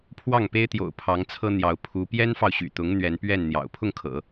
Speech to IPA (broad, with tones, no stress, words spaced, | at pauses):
pʰwɑ˥˩ŋpe˥ɪ̯t̪jo̰˨˩ʊ̯ pʰɑ˧˥ŋt͡sʰɤ˥n̪jɑ˧˥ʊ̯ pʰu˧˥ pjɛ˥nfɑ˨ʊ̯ɕy̰˨˩t̪ʊ˧˥ŋ n̪ɥɛ˧˥npɥɛ˥˩nn̪jɑ̰˨˩ʊ̯ pʰʊ˥˩ŋkʰɤ̰˨˩˦